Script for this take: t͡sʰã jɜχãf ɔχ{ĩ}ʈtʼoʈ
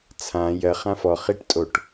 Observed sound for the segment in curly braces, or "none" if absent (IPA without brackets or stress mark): i